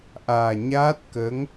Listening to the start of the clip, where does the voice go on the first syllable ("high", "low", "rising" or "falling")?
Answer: low